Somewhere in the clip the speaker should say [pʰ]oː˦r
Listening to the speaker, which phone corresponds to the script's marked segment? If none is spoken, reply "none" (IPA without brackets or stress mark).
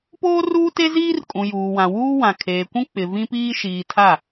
p